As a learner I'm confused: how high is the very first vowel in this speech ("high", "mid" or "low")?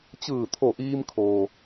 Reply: high